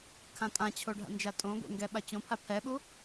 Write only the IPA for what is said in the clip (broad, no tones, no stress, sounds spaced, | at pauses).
kʰ ã tʼ ã t͡ɕʰ o ɖʱ a̰ n d͡ʒ a tʼ õ ɡʷ ḛ ŋ ɡ ɛ ɓ a t͡ɕ õ pʰ a pʰ ɛ ɓ u